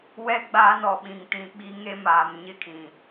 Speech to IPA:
w ɛ˦ ɡ͡b aː˦ n ɔ˨ ɓ ĩ˨ ŋ t ĩ˨ ɓ i˦ ŋ e˦ m aː˨ m ɲ ɪ˦ kʰ ĩ˨

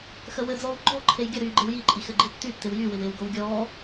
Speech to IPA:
x ə w ɘ d͡z ɔː w ɡ͡ǃ ɔ ǃʰ e j ɡʲ ə ɾ yː ɡ͡ǃ ɪ w j i ǃʼ i x ɘ ɡ͡ǃ i tː y tː ɪ w j y w ɪ w ɪː w ɡ o w ɡʲ ɔː

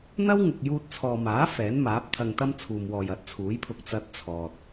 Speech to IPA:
n̪ ɐ˥ w ŋ ʊ˨ k̚ j uː˧ t̚ t͡sʰ ɔː˨ m aː˨˥ f ɛː˨˥ n m aː˨˥ p̚ t̪ʰ ɐ˧ ŋ t̪ ɐ˥ m t͡sʰ uː˨ m w ɔː˨ j ɐ˨˥ t̚ t͡sʰ uː˨˥ j pʰ ʊ˧ k̚ t͡s ɐ˧ t̚ t͡sʰ ɔː˨ t̚

